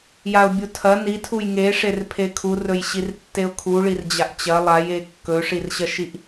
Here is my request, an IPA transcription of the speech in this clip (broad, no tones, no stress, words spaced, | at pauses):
jaʊ̯bʲutʰɐ nitʰuj ŋeʂer pʰekʰurɵjɕir tːeʊ̯kʰuɭir d͡ʑaʔt͡ɕɐ lˠaje kːɵʂirɕɐʃiʔ